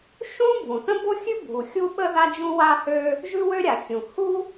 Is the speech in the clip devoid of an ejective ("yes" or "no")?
yes